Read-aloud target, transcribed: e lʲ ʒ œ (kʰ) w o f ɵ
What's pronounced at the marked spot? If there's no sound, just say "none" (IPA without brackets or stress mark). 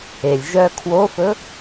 kʰ